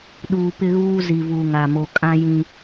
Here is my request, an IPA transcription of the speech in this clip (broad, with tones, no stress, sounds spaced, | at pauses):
ɗ uː˨ p ɪ˦ ɣ uː˦ z i˨ v u˨ ŋ a˨ m o˨ kʼ ã˦ j ĩ˦